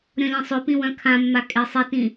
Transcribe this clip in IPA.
ɾʲ ɔ̃ lʲ ẽ sˤ ø p ĩ w œ̃ kʰ ã mː a kʼ e sˤ e t ĩ

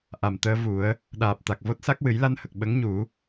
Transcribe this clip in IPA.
ʔ a˨˩ m t̪ əː˧ v u˨˩˦ ə̯ | ɗ aː˨˩ p̚ t̪ a˨˩ k̚ v o˦˥ t̚ s a˦˥ k̚ w ɨ˨˩˦ j l a˧ n h ə˨˩ k̚ ɓ ə˧˥ ŋ ɲ u˨˩˦

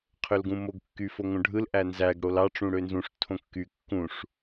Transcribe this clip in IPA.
qʰ ø l ɡ ũ m o ɡ kː y f o ŋ õ ɖʱ ɯ l ʔ æ n z æ ɡ ɽ o l ɑ ʈ͡ʂ ũ ɽ ø n z ũ ʂ tʰ õ kː y kː ũ ʂ

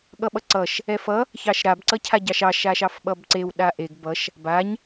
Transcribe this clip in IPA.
ɠ ʌ ɓ ʌ ǀ ʌ ʃ | ɛ f ʌ | ç ɑ ʃ ɾ a b ǀ ʌ cʰ a ɟ ɑ ʃ ɑ ʃ a ʃ ɑ f ɓ ʌ b ǀ e w ɗ a ʔ e ɡ b ʌ ʃ | b a ɲ

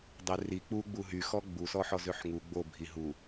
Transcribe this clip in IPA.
dˤ e r i k͡p u ɡ͡b u ɦ y x ɔ ɡ͡b u s ɔ ħ ɔ z ø ħ ŋ u ɡ͡b o bʱ i ɦ u

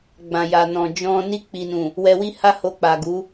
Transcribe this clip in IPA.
ɡ͡b ã˨ j a˨ n ɔ̃˨ d͡ʒ ɔ̃˧ n i˧ k͡p i˨ n ũ˨ | w ɛ˧ w i˦ h a˦ h o˧ k͡p a˨ ɡ u˨˦

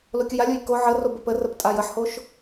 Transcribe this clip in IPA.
l o kʲ ʊ j a lʲ o j k o ʕ ə r o b ə p ə r ə p tʼ a j ə ħ h o ʃ

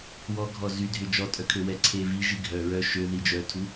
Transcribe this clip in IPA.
w ɔ ɡʱ ɔ z y dʱ ʏ d͡ʒ ɔ tʼ œ kʰ ø w ɛ ǀʰ e v i ʒ i ɡʱ œ ɹ œ ʃ ø ð i d͡ʒ œ tʰ u

